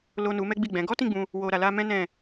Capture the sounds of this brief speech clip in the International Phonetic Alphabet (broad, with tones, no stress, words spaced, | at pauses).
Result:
lo˨ nu˨˦mɛ˦ɡ͡bi˦˨ɡ͡bɛ̃˨˦ ɡɔ˦tĩ˦˨ɡ͡bũ˧ | wo˨ɾa˨ la˧mɛ̃˦nɛ̃˦˨